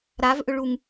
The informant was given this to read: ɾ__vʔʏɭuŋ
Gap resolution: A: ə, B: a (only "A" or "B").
B